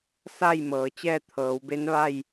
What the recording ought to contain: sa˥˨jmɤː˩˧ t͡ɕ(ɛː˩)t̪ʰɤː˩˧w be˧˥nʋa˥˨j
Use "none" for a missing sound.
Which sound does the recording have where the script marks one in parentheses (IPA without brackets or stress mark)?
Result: ɛː˥˨